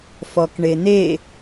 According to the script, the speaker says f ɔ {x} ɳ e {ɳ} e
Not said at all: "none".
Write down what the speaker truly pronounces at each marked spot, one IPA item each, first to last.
k, n̪

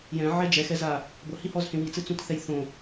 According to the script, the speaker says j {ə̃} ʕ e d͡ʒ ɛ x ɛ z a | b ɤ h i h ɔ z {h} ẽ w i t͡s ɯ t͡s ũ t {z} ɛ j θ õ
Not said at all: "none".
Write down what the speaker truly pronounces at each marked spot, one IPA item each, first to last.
ɛ̃, h, θ

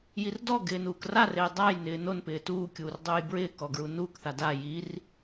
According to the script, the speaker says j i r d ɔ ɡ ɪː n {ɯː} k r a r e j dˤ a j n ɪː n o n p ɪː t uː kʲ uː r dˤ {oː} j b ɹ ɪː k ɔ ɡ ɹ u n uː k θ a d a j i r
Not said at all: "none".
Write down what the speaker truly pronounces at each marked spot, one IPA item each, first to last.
uː, uː

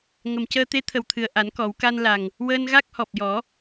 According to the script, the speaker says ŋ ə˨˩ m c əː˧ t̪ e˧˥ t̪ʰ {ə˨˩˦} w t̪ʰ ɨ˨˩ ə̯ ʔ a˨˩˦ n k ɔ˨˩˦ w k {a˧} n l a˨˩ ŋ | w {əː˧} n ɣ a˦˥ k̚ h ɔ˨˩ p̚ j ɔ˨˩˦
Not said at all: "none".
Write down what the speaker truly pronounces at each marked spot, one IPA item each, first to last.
ə˨˩, a˧, əː˧

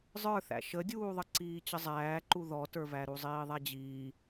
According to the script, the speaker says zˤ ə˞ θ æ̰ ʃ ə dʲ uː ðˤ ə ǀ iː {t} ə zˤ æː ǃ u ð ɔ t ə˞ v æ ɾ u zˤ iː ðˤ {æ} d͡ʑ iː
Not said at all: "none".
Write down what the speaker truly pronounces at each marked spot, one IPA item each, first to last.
t͡ɕ, æ

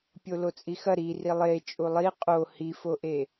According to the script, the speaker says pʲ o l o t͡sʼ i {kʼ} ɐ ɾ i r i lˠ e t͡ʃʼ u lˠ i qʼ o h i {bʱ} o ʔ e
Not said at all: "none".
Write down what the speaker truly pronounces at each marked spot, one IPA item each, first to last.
x, f

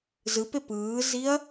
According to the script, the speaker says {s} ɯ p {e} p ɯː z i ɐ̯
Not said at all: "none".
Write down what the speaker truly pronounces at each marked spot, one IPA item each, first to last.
z, e

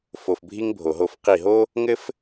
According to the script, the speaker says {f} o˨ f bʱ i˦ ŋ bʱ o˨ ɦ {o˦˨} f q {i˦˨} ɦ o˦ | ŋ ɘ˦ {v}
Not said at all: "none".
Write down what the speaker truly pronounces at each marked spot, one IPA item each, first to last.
f, o˦˨, i˦˨, f

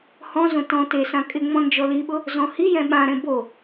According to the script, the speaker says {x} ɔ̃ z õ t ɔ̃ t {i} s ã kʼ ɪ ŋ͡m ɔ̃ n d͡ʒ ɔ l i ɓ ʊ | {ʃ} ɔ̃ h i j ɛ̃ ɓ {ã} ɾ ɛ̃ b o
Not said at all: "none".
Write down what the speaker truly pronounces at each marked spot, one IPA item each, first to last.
h, e, z, ã

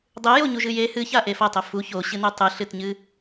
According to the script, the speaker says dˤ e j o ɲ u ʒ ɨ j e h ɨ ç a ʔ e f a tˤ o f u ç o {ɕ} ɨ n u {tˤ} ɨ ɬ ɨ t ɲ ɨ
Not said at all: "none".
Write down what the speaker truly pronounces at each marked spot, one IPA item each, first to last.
ɕ, tˤ

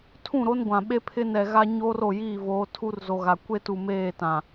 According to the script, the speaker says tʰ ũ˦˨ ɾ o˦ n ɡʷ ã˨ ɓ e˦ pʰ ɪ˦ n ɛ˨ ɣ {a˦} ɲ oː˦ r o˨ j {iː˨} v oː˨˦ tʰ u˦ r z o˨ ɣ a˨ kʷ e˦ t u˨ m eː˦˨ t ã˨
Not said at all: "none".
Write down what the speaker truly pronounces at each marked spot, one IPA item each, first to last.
a˦, iː˦˨

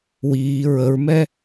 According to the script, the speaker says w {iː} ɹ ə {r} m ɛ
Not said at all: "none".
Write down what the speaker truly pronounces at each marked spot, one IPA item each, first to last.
iː, ɹ

